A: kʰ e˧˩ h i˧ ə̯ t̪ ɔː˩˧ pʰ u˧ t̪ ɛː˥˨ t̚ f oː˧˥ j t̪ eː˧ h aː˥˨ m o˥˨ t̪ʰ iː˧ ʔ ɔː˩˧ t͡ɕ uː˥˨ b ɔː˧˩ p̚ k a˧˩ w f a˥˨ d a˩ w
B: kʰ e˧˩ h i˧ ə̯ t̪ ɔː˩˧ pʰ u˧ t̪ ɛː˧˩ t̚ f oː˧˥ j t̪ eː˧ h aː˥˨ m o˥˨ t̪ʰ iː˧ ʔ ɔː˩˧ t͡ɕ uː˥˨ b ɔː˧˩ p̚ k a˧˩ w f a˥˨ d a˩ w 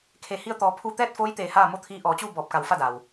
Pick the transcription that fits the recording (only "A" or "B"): A